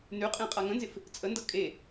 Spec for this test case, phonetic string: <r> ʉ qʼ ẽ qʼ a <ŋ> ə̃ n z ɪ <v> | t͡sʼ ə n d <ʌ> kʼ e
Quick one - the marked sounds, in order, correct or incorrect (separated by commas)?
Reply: incorrect, correct, incorrect, correct